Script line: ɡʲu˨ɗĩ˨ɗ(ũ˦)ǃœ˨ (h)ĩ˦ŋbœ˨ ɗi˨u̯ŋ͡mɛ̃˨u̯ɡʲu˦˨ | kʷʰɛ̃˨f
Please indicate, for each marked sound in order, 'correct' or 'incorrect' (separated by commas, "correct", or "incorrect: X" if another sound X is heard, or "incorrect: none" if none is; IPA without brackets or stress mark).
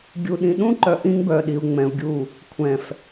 correct, incorrect: ʔ